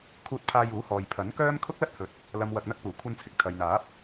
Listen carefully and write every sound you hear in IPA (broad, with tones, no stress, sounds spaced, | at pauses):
kʰ uː˧ t̚ pʰ aː˧ j uː˨˥ h ɔː˨ j pʰ ɐ˨˥ n k œː˥ m kʰ ʊ˥ k̚ l ɐ˥ t̚ h ɵ˨˥ t̚ | l ɐ˨ m w ɐ˨ k̚ n̪ ɐ˧ k̚ p uː˨˩ kʷʰ ɐ˧ n t͡sʰ ɪ˨ k̚ t̪ʰ ɐ˨ j n̪ aː˨˥ p̚